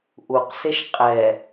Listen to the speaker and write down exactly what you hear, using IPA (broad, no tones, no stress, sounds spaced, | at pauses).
ʔ u q s e ʃ qʼ ɛ